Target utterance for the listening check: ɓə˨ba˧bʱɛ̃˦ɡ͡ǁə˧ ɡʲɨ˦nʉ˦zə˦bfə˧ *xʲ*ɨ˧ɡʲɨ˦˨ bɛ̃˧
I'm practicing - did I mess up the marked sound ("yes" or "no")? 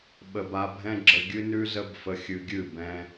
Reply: no